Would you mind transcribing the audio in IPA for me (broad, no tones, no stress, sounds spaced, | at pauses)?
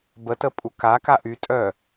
b ə t ə pʼ u k a k a ʔ y tʼ œ